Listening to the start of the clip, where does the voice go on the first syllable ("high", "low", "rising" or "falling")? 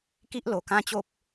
high